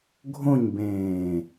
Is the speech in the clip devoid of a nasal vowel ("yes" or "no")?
no